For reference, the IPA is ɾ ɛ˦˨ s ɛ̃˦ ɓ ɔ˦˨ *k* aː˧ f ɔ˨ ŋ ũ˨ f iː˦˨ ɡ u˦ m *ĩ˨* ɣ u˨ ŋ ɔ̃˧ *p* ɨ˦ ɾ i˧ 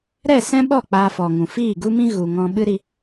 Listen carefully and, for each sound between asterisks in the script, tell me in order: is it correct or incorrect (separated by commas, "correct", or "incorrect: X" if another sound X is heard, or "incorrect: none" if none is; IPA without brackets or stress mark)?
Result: incorrect: k͡p, incorrect: ĩ˦, incorrect: ɓ